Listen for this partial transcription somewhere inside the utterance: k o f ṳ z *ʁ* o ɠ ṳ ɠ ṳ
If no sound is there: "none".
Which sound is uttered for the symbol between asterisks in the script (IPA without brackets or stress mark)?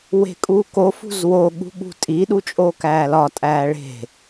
w